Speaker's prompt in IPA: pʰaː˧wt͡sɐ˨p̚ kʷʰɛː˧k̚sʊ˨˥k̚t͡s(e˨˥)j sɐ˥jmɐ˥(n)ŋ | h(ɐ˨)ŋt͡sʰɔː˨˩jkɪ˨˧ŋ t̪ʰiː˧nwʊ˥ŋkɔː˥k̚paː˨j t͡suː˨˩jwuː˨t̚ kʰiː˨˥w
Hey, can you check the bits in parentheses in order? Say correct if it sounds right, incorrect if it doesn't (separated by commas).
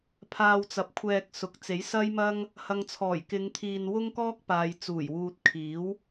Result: correct, incorrect, correct